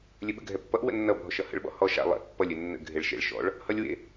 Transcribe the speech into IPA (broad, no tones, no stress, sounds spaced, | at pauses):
lʲ ɘ ɓ ə̰ ɡʱ ɛ pː ʌ ʔ w ə̰ nː ʌ bʱ ɔ ʃ ʌ h ə̰ ɭ ɓ ɔ̰ h ɔ ʃ a̰ lˠ ɛ̰ pː ʌ lʲ ɘ nː ə̰ ɡʱ e ɭ ʃ ḛ ɭ ʃ ɔ̰ ɭ | h ʌ lʲ w ḛ